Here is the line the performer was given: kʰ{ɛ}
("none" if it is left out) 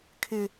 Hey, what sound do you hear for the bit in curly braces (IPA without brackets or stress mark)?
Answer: ɪ